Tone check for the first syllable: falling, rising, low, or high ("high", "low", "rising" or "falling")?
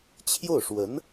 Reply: falling